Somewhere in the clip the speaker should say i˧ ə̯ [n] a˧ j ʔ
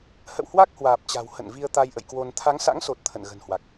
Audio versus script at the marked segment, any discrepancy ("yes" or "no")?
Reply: yes